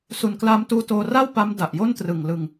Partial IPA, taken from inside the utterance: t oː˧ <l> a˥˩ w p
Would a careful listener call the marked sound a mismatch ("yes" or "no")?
yes